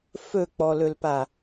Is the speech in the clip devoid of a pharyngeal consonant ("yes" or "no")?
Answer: yes